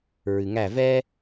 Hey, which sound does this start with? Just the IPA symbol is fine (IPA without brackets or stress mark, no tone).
ɹ